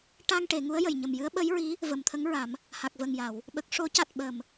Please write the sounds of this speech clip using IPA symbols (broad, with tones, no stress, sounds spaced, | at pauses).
ʈ a˧ ŋ ʈ e˨˩˨ ŋ u˧˥ ə̯ j ə˨˩ j ɲ ə˨˩ m j ɨ˧˥ ə̯ ɓ ə˧˥ j ɹ i˧˥ | v ə˨˩ m t̪ʰ ə˧˥ ŋ ɹ a˨˩˦ m | h a˨˩ k̚ v ə˨˩ ŋ j a˨˩˨ w | ɓ ə˨˩ k̚ ʂ o˨˩˦ c a˨˩ t̚ ɓ ə˨˩ m